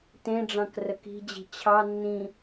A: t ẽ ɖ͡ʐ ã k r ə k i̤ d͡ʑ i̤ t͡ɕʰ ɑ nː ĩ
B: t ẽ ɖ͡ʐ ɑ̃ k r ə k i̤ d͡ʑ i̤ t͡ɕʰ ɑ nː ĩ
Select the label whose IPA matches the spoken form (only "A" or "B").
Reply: B